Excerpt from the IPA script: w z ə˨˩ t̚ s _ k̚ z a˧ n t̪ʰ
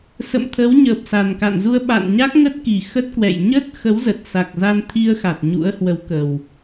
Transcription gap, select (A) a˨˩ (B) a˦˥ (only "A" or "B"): A